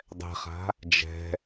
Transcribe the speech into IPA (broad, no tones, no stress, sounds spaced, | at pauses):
dˤ ɛ̤ χ a̤ | d͡ʒ ɛ̤